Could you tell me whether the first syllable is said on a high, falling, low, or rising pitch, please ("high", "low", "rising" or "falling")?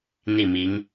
falling